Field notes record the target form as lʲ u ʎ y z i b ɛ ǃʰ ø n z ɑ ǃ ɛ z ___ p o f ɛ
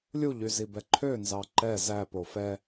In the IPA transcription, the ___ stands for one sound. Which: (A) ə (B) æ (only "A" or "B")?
B